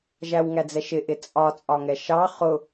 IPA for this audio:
ʒ æ w ŋ æ d͡z ɛ ʃ ɪ ʔ ɪ t͡sʼ ɒ t͡sʼ ɒ ŋ ɛ ʃ ɑ χ ʊ

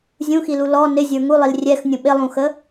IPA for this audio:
zʲ ũ x i l u l ɔ n ɪ zʲ ə˞ ŋ u lˠ i l rʲ ɛ x nʲ ũ ɓ ɪ lˠ ũ x ə

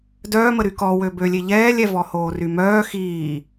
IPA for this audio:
d œː m ə ɾ y k ɔ w ø b ø lʲ e ʎ ɛː lʲ ɛ v ɔ h oː r y m œː x iː

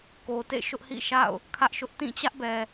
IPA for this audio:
k o˨ t ḛ˦˨ ʃ ʊ˦ ʔ h ḭ˦˨ ʃ a̰˦˨ ʊ̯ | kʰ ä˦ ʔ ʃ ʊ˦ ʔ t ĩ˦˨ t͡ɕ ä˦ ʔ b ɛ˨

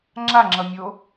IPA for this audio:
ŋ͡ǁ a ŋ͡ǁ ʌ mʲ o

